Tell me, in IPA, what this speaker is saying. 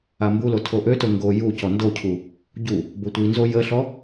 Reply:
ambulo tʰoʔøto ŋɡo ju cɔndocʰu | ɟu | botʷinzo jəɬɔ

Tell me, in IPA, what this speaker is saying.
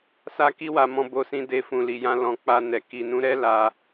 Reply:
sa˦ki˦wa˧ mɔ̃˧bo˧sĩ˧ de˧fũ˨ li˨jã˧ lɔ̃˨ k͡pa˧nɛ˨ ki˨nũ˨˦ɾɛ˦ la˧

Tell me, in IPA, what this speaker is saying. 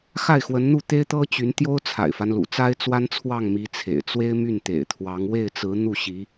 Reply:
xa˥˩ɪ̯xwə˧˥nn̪u˥˩ t̪e˥ɪ̯t̪ɤ˥t͡ɕy˧˥n t̪jo˥ʊ̯ t͡sʰa̰˨˩ɪ̯fa˦nlṵ˨˩t͡sa˥ɪ̯ t͡swa˥nt͡sʰwɑ˥˩ŋ mi˧˥t͡sʰḛ˨˩ɪ̯ t͡swe˥ɪ̯my˥˩nt̪ḛ˨˩ɪ̯t̪ʰwɑ˧˥ŋ we˥˩ɪ̯t͡sɹ̩˧˥ n̪u˥˩ɕi˧˥

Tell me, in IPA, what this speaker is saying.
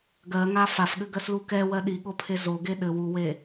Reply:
ɡɜŋa fafɠɘɡɜslu kɛwɜ ɗiɠopʰe zoɡe ɗɘ wuwe

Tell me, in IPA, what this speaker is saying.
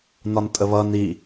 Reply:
nɒntʼəβʌn i

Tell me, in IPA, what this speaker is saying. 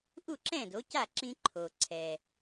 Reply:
ʔu˥˩ǁɛ̃˥˩ do˩˥ca˥˩ǁĩ˧ ǃʰo˩ ǀʰɛ˩

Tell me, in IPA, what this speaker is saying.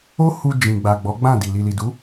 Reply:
o˦hu˧ d͡ʒĩ˨ɡ͡ba˨ ɡ͡bɔ˨˦ɡ͡bã˦˨di˨ li˨li˨du˨˦

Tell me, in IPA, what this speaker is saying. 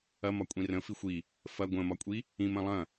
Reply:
ɐmɒ kʷʼĩrə̃ fixʷi | fɐ ɡʷə̃mɒkʷʼi | ĩm ɐ̃lˠɐ̃

